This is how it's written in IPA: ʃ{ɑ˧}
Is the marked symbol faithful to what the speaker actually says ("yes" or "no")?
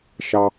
yes